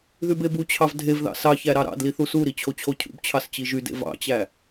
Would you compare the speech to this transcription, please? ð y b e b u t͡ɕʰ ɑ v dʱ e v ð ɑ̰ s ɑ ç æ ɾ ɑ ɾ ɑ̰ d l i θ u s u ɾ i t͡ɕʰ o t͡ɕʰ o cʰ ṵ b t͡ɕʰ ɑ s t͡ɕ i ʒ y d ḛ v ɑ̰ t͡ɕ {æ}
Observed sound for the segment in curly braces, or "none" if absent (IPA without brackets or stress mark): æ